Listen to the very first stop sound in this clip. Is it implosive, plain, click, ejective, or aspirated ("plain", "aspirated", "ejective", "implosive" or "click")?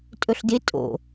ejective